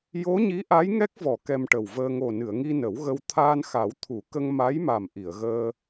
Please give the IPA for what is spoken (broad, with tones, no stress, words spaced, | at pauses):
jo˧˥ɲi˧˥ʔa˧˥j ŋɛ˦˥k̚vɔ˨˩˨ kɛ˧mʈə˨˩wvəː˧ ŋo˨˩nɨ˨˩˨ə̯ŋi˧ nə˨˩˦wɣə˧w t̪ʰaː˧nxa˨˩˦wt̪ʰu˨˩˦kə˧ŋ ma˧˥jma˨˩m ʔi˨˩˨ə̯ɣəː˧